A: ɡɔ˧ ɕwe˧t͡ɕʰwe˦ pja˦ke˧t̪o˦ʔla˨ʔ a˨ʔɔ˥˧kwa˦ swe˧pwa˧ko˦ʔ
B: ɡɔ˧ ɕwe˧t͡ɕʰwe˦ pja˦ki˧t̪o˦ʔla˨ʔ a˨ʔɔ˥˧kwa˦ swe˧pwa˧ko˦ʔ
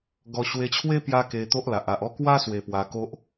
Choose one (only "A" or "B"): A